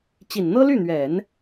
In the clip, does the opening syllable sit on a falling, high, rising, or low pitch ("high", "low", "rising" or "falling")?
low